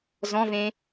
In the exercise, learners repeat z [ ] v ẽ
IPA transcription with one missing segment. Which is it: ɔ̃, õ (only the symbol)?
ɔ̃